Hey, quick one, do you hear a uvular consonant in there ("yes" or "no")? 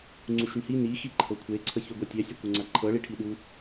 no